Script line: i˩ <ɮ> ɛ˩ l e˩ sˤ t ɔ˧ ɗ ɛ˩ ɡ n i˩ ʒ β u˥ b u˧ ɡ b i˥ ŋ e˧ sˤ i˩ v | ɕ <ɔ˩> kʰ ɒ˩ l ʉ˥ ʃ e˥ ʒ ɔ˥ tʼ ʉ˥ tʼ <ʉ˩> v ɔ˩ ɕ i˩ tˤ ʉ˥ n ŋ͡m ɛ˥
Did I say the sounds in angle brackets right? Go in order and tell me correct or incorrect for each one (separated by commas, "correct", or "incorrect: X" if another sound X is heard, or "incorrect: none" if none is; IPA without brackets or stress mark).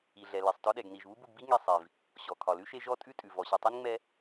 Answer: correct, correct, correct